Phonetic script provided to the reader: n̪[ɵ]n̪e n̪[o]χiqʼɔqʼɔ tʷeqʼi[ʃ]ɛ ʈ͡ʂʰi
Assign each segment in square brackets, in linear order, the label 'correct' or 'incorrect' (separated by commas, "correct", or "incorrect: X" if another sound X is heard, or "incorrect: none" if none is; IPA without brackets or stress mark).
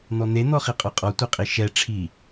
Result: incorrect: ɔ, incorrect: ɔ, correct